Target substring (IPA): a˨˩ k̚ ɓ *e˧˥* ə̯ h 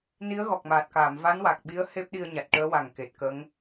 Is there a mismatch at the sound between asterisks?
yes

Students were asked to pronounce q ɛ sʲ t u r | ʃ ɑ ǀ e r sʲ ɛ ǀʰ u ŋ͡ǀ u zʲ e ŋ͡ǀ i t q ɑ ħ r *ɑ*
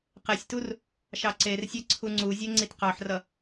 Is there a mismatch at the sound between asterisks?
yes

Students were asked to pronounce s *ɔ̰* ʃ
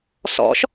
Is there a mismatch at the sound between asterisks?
no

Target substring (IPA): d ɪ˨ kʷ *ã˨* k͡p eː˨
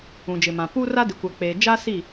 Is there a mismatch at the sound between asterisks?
yes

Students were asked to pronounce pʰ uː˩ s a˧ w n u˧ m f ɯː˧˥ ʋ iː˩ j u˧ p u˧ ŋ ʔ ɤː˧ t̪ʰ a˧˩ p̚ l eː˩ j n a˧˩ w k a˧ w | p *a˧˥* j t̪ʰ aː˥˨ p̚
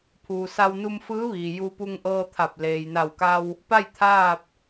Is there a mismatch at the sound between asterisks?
yes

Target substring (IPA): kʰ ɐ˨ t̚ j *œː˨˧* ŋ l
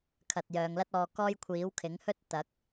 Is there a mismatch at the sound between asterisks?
no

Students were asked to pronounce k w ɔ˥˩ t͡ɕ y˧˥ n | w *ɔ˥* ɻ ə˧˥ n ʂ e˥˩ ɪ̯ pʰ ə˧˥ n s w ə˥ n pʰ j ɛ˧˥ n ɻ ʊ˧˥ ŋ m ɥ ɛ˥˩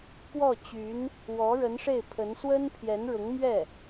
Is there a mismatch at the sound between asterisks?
yes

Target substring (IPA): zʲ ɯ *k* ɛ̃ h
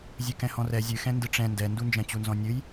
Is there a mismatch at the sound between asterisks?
no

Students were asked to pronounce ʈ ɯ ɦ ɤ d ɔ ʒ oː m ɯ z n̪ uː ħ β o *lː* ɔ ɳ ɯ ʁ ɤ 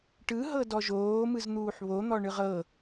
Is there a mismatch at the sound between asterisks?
yes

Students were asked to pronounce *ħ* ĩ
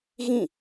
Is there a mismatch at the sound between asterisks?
yes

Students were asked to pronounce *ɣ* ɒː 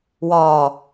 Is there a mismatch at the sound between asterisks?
yes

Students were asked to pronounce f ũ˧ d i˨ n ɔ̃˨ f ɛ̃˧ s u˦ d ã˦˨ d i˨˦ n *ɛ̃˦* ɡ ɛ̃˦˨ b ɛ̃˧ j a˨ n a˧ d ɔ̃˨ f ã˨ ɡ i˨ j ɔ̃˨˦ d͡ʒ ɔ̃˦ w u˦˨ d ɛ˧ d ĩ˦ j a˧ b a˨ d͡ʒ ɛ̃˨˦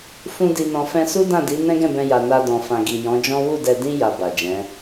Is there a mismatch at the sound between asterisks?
no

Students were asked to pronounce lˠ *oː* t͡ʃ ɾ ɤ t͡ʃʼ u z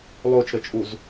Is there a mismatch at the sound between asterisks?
no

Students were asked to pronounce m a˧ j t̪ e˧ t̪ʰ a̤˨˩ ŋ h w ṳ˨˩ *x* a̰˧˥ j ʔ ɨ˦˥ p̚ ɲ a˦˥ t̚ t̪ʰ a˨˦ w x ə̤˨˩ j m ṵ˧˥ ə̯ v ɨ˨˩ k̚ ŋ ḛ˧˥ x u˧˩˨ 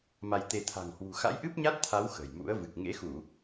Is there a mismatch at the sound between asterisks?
no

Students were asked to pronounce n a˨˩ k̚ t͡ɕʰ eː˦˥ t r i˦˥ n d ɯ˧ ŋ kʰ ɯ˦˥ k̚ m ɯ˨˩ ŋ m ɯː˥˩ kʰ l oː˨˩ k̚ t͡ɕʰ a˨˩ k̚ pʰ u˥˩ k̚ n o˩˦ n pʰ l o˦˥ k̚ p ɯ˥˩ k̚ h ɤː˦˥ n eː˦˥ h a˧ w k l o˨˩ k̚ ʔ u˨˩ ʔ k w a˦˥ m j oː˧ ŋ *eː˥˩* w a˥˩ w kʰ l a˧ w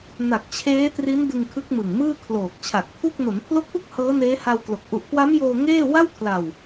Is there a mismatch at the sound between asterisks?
no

